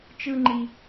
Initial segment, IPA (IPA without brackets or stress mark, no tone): t͡ʃ